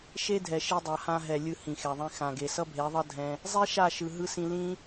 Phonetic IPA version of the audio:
ʃ e˦ dʱ ɛ˨ ʃ i˧ dˤ a˨ h ã˧ ɦ ɛ˨ lʲ ɯ˧ h ĩ˨ x ɛ˨ ðˤ ĩ˧ x ã˨ ɡ e˨ s ʌ˦ bʱ e˨˦ ðˤ ʌ˦ dʱ ɛ̃˦ | zˤ i˦ ʃ a˦˨ ʃ ɯ˨ ɦ ɯ˧ s ĩ˧ l ĩ˦

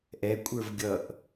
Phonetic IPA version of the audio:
ʔ ɛ kʷʼ ə˞ v ɡʲ ʌ ʔ

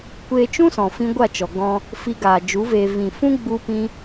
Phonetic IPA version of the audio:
kʷ eː˧ t͡ʃ ũ˦ s ɔ̃˨ f ĩ˦ ɡʷ a˦˨ t͡ʃ ɔ˨ ɡ ɔ̃˧ | f i˧ ɡ aː˨ d͡ʒ u˨˦ v eː˧ v ĩ˨ f ũ˦ ɡ͡b u˦ p ĩ˦

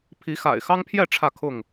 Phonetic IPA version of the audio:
pʰ i˨˦ x a̰˨˩ ɪ̯ x ɑ˦ ŋ pʰ j ɛ˥˨ ʈ͡ʂʰ ä˥˨ kʰ ʊ˥˨ ŋ

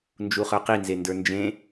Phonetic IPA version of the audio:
n d͡ʒ u χ ə˞ q i n z e n d ə˞ n d͡ʒ ẽ

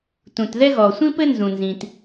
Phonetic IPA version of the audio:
t ũ˩ t ð ɛ˥ ɣ ɔ˩ sʷ ĩ˥ p ɘ˥ n z ũ˩ n z ĩ˩ t

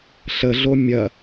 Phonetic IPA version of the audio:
ɬ ə ɮ o mʲ ɐ

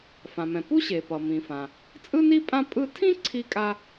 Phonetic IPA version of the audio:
f ã˩ m ɛ̃˩ p u˥ ɕ e˩ p ʌ˩ m ĩ˩ f ã˩ | t͡sʼ ɯ˥ n i˥ pʼ ã˥ pʼ ɯ˥ tʰ ĩ˥ ǀʰ i˥ kʼ a˥

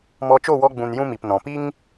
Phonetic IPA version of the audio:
m ɔ˧ t͡ʃ o˦˨ w ɔ˧ ɡ͡b ũ˨ n j ũ˦ m i˨ p n ɔ̃˨ p i˦ ŋ

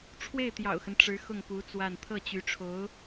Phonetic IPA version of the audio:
ʈ͡ʂʰ w e˥˩ ɪ̯ t̪ j ɑ̰˨˩ ʊ̯ x ə˦ n ʈ͡ʂ ɻ̩˧˥ x ʊ˥˩ ŋ p u˧˥ t͡s w a˥˧ n t̪ʰ ɤ˥˩ t͡ɕ y˧˥ ʈ͡ʂʰ o˧˥ ʊ̯

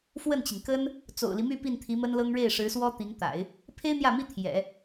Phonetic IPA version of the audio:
f w ə˥˩ n t͡ɕ i˩ ŋ k ə˥ n | t͡s o̰˨˩ ʊ̯ l i˦ m y˥˧ p i˥˩ n t̪ʰ i˧˥ m ə˥ n l ɤ˥ ŋ ɻ e˥˩ ɪ̯ ʂ ɻ̩˧˥ s w ɔ˥ t̪ i˧˥ ŋ t̪ a̰˨˩˦ ɪ̯ | pʰ e˥ ɪ̯ n̪ j ä˥˩ m i˥ t̪ʰ j ɛ̰˨˩˦

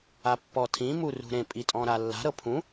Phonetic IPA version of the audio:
a pː ɔ tʰ ĩ m u r ṳ ɾ ẽ pʼ i tʼ ɔ̃ ɾ a lː a̤ ɾ ɤ pʰ ũ

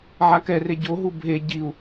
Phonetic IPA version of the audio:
ʕ a k ɛ r e ɟ o ɦ u bʱ e ɟ i u̯

